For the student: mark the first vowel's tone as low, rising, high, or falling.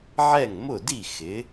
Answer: falling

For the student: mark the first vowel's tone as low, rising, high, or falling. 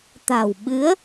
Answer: low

